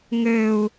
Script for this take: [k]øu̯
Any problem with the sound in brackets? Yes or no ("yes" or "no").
yes